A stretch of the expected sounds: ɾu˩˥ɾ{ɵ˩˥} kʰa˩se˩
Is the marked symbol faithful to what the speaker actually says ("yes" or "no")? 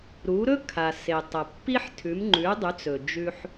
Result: no